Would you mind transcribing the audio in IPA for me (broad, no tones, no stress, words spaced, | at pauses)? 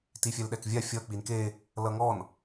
tifʲɛlɗɛkvʲa fʲʌ k͡pinke | lʌŋɔn